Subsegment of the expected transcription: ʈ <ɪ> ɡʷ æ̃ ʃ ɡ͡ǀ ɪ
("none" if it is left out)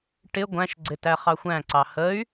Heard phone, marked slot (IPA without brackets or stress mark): ɪ